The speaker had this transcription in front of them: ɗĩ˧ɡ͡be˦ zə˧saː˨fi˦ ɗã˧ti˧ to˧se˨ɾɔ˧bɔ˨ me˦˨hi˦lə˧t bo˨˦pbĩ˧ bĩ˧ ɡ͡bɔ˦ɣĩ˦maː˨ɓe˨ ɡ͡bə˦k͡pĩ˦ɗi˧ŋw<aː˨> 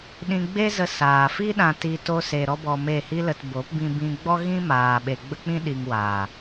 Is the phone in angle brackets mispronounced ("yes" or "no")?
no